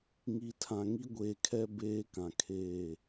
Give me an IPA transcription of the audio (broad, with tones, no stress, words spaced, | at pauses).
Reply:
ŋi˨ tʰã˨ŋi˦ɡʷeː˨kʰɛ˦ beː˦kã˨kʰeː˦˨